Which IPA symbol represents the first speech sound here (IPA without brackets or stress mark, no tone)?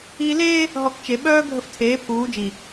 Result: iː